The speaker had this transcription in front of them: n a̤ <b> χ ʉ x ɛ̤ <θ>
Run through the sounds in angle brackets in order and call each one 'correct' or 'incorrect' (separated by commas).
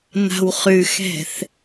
incorrect, correct